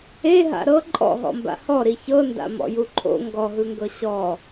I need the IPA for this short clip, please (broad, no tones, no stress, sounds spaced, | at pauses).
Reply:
e ɦ a̰ ɾ ɤ ǃʼ ɔ̰ ɦ ɔ̰ m b a̰ h ɔ ɾ i ç ɤ n d a̰ m ɔ̰ j u ǃʰ o̰ ŋ ɡ ɔ ɦ ɯ ŋ ɡ ɤ ɕ ɔ